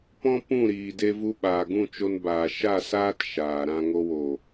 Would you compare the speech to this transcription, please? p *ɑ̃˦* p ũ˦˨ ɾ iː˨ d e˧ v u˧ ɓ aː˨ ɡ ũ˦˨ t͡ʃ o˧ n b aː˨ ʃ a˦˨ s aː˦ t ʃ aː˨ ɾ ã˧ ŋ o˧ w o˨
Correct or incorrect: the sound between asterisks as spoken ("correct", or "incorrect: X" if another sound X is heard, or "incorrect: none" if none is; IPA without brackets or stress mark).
incorrect: ɔ̃˦